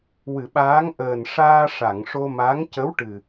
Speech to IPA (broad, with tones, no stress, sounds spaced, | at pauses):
w ɨ˨˩˨ ɓ aː˧˥ ŋ ʔ əː˨˩ n ʂ aː˧ ʂ a˨˩˨ ŋ ʂ o˧ m a˧˥ ŋ c ə˧˥ w ʈ ɨ˨˩